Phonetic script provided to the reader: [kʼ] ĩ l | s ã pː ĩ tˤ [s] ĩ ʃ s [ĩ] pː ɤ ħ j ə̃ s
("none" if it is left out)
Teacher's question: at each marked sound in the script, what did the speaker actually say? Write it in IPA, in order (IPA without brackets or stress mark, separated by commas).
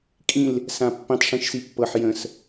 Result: kʼ, ʂ, i